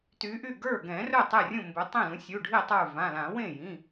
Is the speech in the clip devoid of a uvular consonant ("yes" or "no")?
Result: yes